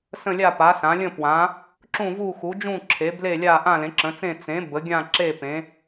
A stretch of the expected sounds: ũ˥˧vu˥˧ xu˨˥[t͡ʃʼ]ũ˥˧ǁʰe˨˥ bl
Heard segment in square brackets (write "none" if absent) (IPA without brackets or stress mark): d͡ʒ